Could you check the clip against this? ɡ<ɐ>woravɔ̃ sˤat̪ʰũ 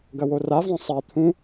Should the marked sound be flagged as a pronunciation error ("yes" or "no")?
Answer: no